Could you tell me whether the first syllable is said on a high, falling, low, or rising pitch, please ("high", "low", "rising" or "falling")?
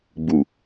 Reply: low